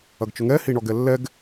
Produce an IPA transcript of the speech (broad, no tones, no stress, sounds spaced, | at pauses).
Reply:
ɐ ɡ t͡ʃ ʊ ŋ ɛ h i ɳ ɔ ɡ ɛ lː ɛ ɡ